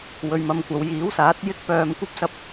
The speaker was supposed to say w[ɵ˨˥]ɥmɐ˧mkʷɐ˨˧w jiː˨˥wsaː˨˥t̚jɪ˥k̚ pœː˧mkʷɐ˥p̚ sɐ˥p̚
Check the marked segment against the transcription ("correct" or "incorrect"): incorrect